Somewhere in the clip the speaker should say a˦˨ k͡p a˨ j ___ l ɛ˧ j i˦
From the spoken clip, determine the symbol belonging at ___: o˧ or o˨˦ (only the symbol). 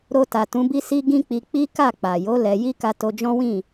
o˨˦